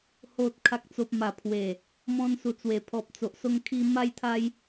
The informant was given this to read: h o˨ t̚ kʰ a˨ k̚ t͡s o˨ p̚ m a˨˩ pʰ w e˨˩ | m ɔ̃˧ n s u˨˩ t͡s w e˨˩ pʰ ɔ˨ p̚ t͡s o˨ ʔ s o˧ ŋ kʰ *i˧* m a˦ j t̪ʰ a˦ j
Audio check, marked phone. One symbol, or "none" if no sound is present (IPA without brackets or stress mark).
i˧